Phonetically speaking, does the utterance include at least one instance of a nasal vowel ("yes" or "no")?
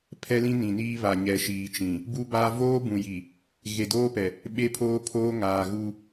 yes